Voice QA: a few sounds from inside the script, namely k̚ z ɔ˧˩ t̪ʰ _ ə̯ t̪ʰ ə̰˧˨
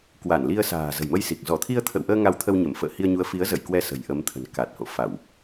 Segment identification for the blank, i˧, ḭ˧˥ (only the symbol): i˧